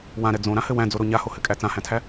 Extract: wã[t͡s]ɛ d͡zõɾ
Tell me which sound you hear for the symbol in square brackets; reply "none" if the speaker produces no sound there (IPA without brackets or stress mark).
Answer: ɾ